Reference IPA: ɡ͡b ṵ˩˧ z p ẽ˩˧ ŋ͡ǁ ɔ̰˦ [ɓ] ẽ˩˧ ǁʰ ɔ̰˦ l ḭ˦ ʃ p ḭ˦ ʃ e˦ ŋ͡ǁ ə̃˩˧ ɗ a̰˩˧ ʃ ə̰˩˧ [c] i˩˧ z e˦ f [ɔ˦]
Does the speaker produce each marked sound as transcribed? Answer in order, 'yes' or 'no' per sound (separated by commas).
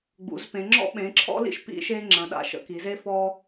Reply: yes, no, yes